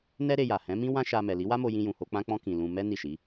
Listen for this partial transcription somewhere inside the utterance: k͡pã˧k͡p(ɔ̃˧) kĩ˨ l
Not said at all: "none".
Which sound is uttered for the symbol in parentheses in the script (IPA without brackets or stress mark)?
ɔ̃˧